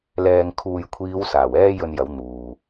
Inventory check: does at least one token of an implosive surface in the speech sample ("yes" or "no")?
no